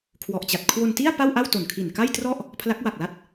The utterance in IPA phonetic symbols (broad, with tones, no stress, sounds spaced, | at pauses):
kʰ w ɔ˨˩ ʔ t͡ɕ a˨˩ t̚ kʰ w o˧ n t i˥˩ a̯ p a˥˩ w ʔ a˥˩ w t o˨˩ n kʰ i˨˩ n k a˥˩ j t r ɔ˥˩ ʔ | pʰ l a˦˥ k̚ w a˨˩ k̚ l a˦˥ t̚